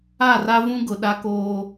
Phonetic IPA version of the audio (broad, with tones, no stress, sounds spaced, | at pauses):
a˦˨ r a˦ v ũ˦ ɡ ʊ˨ ɗ a˦ k oː˦